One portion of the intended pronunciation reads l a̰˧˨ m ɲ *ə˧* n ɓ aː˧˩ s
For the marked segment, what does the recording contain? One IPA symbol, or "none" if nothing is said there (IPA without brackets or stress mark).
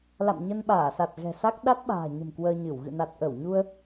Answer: ə˧